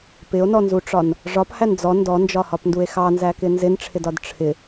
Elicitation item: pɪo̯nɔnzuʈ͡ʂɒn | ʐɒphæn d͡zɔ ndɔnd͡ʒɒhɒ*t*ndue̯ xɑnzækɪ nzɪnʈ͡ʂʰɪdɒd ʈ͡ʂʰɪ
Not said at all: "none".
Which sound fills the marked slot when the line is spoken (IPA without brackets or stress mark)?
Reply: p